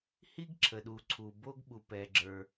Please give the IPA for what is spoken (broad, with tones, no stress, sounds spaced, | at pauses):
h i˥ ɡ ǁʰ ə˩ ɗ u˩ ǀʰ u˩ b o˥ ɡ ɓ u˩ p ɛ˩ ɡ͡ǁ ə˞˩